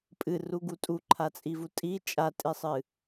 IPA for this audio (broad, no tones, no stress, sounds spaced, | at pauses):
pʼ ɨ r u ɡ u tʼ u ǃʰ a t͡sʼ i v u tʼ i t͡ʃʼ a tʼ i sˤ ɨ